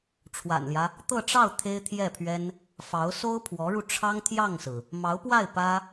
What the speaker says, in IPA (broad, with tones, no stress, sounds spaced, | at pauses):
ʈ͡ʂʰ w a̰˨˩ n l j ä˦ | t̪ ɤ˥˧ ʈ͡ʂ ɑ˥˩ ʊ̯ t̪ʰ e˥ ɪ̯ t̪ʰ j ɛ˥˩ pʰ ɥ ɛ˥ n | f ɑ˧˥ ʊ̯ s o˥ ʊ̯ pʰ w ɔ˧˥ ɻ u˧ ʈ͡ʂʰ ɑ˥ ŋ t̪ʰ j ɑ˥˩ ŋ s ɹ̩˩ | m ɑ˧˥ ʊ̯ p w a˥˩ ɪ̯ p ä˥